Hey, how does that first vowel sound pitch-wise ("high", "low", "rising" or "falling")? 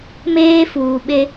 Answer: high